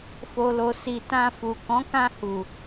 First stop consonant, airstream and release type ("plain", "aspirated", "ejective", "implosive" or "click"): plain